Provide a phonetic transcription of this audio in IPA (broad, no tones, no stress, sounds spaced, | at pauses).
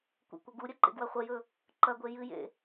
kʷ ḛ kʷ ɐ ɡ u ɾʲ ɐ ǃ ḛ ɡ w ɐ χʷ ɐ j ɵ | ǃ ɐ ɡʷ e j ɨ j ḛ